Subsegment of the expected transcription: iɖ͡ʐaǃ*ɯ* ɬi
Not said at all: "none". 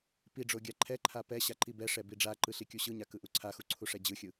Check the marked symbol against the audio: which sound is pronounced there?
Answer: ɯ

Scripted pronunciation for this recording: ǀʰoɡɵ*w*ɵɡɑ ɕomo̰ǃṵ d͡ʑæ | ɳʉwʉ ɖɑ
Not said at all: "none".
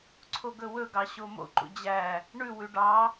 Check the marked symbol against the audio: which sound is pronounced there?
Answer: w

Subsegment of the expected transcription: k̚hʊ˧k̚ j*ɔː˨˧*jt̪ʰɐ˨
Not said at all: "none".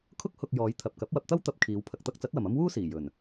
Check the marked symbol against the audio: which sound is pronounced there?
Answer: ɔː˨˧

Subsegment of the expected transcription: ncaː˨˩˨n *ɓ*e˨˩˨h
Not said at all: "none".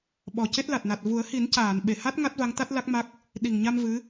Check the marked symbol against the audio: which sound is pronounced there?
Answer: ɓ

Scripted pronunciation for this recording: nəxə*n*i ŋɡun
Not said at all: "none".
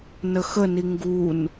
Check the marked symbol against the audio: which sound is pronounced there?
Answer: n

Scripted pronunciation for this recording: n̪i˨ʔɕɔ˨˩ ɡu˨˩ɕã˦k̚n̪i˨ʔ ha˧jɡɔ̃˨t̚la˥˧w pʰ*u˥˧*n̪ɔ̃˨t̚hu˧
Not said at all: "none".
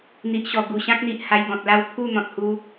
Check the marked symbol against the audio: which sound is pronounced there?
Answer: u˥˧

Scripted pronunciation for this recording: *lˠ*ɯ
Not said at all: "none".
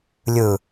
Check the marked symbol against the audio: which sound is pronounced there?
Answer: lʲ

